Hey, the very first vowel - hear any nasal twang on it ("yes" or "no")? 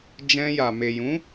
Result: yes